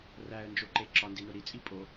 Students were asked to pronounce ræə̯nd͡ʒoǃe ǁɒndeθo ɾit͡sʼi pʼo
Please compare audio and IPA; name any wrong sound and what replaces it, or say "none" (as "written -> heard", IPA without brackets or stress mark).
θ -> n